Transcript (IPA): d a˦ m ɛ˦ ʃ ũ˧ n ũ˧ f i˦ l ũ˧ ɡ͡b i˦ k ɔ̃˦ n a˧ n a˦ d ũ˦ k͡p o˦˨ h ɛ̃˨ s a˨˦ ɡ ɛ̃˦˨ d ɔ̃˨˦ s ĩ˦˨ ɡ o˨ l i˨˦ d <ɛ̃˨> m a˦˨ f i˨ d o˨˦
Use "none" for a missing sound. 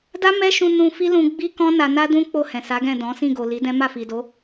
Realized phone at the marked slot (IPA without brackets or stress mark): ɛ̃˦